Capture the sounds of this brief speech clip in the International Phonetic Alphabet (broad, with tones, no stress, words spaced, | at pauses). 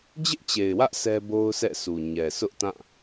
d͡ʑɪ˦ʔt͡ɕe˨ɪ̯wä˦ʔ sɛ˦bo˦ʊ̯sʰɛ̰˦˨su˨ ɲɛ˨sʊ˦ʔtã˦˨